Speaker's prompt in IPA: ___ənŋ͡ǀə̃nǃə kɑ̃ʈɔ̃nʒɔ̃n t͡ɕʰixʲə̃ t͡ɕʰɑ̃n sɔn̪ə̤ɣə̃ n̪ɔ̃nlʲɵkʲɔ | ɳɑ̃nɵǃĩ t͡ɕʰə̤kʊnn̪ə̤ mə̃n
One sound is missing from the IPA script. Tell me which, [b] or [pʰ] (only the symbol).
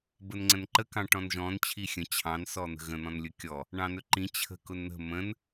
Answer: b